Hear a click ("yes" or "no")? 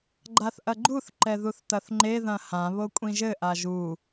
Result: yes